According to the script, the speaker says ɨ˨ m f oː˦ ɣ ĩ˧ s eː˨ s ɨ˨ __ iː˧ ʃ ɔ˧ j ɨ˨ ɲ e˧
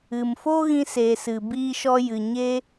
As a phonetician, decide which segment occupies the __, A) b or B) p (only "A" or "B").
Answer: A